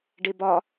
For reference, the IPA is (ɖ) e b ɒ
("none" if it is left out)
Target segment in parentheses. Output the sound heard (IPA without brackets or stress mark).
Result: ɖ